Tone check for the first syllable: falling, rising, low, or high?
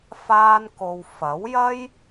high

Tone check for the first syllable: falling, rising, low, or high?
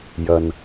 low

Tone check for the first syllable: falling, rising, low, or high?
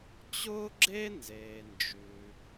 high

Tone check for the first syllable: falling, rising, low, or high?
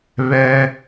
high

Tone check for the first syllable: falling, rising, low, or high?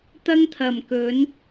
high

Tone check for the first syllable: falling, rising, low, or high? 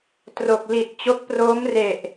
low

